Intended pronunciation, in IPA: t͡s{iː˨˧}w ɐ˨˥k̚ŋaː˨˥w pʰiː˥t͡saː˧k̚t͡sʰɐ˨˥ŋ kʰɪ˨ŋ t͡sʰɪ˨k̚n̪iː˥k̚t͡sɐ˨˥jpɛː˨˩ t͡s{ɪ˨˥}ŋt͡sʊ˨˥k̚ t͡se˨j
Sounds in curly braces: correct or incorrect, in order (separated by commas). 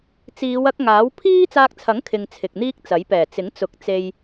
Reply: correct, correct